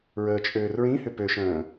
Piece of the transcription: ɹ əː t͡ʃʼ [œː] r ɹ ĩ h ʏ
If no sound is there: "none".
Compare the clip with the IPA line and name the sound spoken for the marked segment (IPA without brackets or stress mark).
øː